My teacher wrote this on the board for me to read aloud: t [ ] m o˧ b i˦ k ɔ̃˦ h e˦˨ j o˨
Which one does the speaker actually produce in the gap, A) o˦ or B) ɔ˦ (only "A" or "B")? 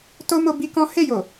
A